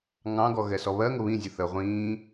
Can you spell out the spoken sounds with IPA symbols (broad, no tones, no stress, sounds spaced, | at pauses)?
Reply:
ŋ ɑ̃ ɡ ɔ ɣ ɛ s ɔ β ɜ ŋ ʊ β ĩ zʲ u θ ə ʁʷ ĩː